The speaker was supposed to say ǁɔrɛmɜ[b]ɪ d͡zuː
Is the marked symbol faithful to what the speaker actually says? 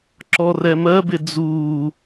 yes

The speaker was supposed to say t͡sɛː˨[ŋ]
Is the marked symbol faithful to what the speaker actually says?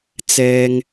yes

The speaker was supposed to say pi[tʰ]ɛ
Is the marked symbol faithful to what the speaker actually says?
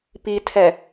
yes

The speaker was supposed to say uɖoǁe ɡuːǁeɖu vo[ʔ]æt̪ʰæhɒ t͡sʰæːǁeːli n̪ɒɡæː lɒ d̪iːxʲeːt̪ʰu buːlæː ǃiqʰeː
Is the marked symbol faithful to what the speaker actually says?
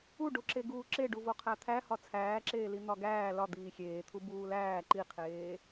no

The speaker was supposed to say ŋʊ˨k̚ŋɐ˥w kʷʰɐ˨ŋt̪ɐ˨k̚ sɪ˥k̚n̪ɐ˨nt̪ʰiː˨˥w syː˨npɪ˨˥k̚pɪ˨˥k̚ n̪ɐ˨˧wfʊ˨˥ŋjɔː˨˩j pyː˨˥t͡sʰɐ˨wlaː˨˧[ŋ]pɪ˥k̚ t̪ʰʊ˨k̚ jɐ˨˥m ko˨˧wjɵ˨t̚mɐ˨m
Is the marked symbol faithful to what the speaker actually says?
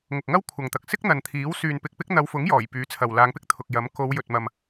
yes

